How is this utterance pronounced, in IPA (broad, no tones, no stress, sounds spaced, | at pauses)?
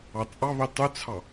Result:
ɑ t͡sʼ ɑ β i tˤ y t͡sʰ ɑ